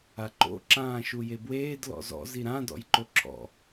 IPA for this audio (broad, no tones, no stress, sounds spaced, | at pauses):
a ǃ o̰ ǁ ãː ʃ u j e b w eː d l ɔ̰ z ɔ̰ z i ɾ ã d ɔ̰ j ǃ o ǁʰ ɔ̰